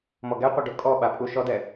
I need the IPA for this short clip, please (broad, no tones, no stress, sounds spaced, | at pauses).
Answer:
m ɔ ɡ ɛ qʷ ɛ ɖ o kʼ ɔ ɓ a pʼ u ʃ ɔ d ɛ